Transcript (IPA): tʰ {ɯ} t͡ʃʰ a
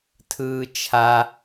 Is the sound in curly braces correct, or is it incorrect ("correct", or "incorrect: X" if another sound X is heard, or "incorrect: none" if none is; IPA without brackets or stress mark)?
incorrect: ɯː